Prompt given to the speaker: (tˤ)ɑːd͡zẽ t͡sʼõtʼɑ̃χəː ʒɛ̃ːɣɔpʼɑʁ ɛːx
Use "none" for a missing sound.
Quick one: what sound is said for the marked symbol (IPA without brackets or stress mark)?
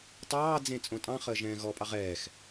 tˤ